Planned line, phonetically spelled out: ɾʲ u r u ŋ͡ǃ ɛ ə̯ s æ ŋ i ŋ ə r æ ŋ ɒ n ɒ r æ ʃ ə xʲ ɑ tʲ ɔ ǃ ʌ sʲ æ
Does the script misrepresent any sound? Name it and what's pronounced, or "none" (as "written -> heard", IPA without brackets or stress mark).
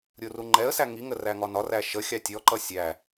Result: none